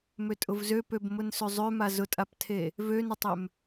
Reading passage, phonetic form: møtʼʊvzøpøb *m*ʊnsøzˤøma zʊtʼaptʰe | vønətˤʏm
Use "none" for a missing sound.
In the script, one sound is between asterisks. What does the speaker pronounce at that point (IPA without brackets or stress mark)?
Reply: m